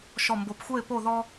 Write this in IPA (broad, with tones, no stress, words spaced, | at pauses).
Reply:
ʃɔ˧˩mbo˧˩pxʷɛ˥˧ɪ̯ po˥˧ðɔ˥